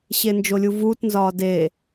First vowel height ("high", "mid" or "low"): mid